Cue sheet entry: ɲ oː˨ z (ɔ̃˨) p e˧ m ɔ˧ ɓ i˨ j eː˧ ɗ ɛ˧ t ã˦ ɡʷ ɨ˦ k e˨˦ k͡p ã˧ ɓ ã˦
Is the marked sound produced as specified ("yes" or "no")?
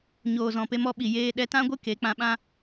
yes